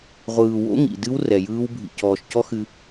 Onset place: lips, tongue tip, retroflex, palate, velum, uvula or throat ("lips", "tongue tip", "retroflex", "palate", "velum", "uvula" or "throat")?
uvula